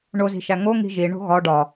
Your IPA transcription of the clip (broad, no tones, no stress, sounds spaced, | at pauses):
ɳ o z i̤ ʃ æ ŋ o ŋ i̤ ʒ i ɳ o̤ ɣ ɒ ɖ ɒ